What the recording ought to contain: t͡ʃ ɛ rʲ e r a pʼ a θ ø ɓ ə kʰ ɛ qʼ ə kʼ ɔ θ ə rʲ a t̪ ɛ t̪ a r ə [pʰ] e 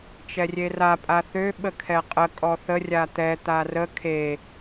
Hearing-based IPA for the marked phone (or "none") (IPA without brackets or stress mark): kʰ